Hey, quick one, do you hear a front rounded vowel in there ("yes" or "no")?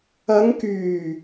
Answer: yes